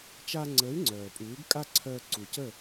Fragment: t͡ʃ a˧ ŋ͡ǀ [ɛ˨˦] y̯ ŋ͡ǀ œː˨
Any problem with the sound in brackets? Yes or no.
yes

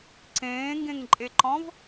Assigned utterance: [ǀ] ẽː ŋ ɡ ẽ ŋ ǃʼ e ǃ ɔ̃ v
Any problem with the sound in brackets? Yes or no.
no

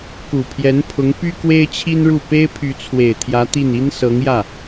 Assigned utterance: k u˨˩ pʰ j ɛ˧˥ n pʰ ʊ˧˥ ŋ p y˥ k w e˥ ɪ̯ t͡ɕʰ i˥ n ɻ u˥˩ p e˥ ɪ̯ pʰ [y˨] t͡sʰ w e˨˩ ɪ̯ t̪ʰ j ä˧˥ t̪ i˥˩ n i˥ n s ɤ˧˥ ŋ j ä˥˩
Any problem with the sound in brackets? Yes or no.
yes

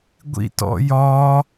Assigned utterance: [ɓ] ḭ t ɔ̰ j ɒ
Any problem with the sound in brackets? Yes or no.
yes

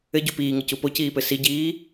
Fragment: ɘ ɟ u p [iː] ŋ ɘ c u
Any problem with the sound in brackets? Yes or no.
no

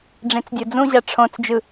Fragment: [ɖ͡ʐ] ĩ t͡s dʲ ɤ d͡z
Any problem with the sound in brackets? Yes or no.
no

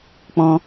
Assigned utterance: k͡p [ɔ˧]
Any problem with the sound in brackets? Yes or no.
yes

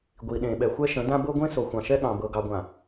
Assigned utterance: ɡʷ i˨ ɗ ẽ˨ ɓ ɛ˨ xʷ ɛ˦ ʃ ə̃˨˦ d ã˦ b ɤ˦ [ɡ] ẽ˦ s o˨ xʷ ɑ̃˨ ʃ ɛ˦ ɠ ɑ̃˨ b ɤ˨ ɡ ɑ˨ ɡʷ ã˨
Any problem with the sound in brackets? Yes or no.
yes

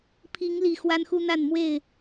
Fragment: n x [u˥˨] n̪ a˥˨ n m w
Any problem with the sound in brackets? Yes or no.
yes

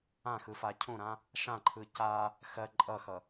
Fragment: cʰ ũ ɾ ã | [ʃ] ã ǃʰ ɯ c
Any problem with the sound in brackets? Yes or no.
no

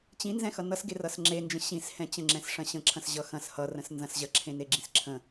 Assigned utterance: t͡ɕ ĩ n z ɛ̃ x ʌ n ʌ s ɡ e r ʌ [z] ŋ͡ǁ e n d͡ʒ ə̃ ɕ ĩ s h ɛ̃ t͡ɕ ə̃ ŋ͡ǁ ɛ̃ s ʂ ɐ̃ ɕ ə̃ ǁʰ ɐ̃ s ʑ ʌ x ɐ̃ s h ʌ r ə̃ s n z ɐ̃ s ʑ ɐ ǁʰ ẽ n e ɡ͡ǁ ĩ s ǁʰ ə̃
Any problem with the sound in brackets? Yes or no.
yes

